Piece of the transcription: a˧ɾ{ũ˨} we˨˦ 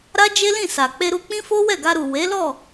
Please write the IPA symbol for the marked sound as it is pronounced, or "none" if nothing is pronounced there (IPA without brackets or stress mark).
u˨